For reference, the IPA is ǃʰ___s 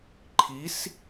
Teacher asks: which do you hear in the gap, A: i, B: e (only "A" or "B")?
A